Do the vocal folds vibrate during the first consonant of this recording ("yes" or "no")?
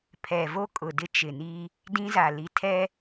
no